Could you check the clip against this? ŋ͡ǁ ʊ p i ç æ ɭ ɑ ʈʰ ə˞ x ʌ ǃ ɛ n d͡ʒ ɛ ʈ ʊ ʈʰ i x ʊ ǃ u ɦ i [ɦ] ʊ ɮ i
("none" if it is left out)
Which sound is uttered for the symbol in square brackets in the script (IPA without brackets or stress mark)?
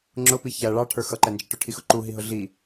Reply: ɦ